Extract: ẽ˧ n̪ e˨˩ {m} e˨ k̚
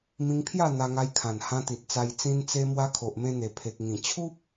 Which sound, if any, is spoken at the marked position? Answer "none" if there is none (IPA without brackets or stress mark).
pʰ